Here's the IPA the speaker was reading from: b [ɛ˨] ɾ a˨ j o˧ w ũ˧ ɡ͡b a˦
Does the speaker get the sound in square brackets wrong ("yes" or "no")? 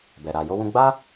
no